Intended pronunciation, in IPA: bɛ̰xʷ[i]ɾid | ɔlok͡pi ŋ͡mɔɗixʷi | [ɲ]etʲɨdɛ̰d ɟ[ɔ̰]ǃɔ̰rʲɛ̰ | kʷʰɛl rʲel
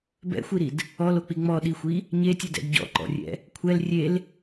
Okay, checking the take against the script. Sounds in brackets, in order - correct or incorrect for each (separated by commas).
correct, correct, correct